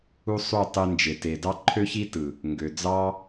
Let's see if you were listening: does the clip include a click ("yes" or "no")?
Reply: yes